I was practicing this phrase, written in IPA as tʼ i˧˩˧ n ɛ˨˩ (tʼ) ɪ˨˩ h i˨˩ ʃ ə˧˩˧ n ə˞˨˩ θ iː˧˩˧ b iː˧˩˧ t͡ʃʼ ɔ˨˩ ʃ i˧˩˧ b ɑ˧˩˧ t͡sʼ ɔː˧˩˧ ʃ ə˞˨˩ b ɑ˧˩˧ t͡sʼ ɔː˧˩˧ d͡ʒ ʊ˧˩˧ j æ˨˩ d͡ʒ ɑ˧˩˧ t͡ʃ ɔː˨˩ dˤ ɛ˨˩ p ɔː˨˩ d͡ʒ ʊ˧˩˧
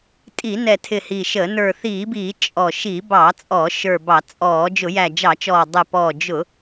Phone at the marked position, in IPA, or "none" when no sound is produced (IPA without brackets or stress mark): tʰ